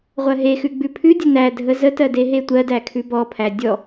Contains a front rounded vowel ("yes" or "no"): no